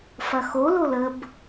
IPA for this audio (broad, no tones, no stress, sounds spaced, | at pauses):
f ɐ x o l o l ə b